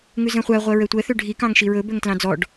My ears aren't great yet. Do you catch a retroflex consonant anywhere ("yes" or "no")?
yes